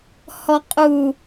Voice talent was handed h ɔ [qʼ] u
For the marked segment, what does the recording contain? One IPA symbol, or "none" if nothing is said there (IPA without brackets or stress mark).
qʼ